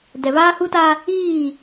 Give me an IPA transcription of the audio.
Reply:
d ɛ˨ β aː˦ h u˦ t a˦ | iː˦˨

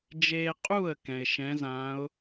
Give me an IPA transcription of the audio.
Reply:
d͡ʒ eː˦ qʼ u˥˩ ə̯ k ɛ̃˩ ɪ̯ ʃ ɛ̃˨˦ z ã˨˦ ʊ̯

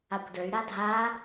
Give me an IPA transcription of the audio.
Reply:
a kʷ d ə˞ y̯ ɾ a dʱ a

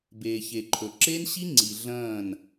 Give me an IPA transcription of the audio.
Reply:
b eː˨ ç e˨ ǃʰ ɵ˨ ǁ e˦ n ɕ i˦ ŋ͡ǀ i˨ ɮ ɐ̃ː˦˨ n

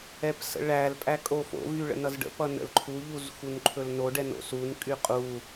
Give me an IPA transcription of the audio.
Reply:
ɛ p s ə̰ ɭ æ l pʼ æ kʼ o f o̰ v y ɭ ə̰ n ʌ z ɖ ə̰ p ʌ n ə̰ l ǃʰ u ʎ u z x u n ǃʰ ɵ l n o ɖ ɛ n o̰ s u n kʼ y qʼ u

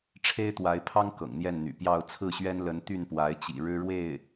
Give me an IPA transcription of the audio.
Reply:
ʈ͡ʂʰ e˥ ɪ̯ t̪ w a˧˥ ɪ̯ pʰ ɑ˥ ŋ k ɤ̰˨˩ ŋ n̪ j ɛ˥˩ n n̪ y̰˨˩ p j ɑ˥˧ ʊ̯ t͡sʰ ɹ̩˥˩ ɕ ɥ ɛ˥ n l ə˧˥ n t̪ y˥˩ n p w a˧˥ ɪ̯ t͡ɕ ḭ˨˩ ɻ ɻ̩˥ ɻ w e˥˩ ɪ̯

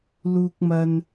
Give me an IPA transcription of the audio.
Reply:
l uː˥ k̚ m ɐ˥ n

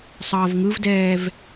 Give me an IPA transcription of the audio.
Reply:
sˤ ʌː v ŋ ɯ v d ɛː v

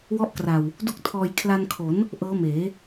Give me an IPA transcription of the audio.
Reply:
w ɔ˦˥ ʔ k r a˨˩ w | d u˥˩ k̚ tʰ ɔː˧ j kʰ l a˧ n kʰ o˩˦ n | ʔ ɤː˦˥ m eː˩˦

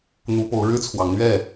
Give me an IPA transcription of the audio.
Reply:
n̪ u˨˦ p o˨˦ ʊ̯ ɻ ɻ̩˦ t͡sʰ w ɑ˨˦ ŋ n̪ ɥ ɛ˥˨

